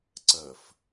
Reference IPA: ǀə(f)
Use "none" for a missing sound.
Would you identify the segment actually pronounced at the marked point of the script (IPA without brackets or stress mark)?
f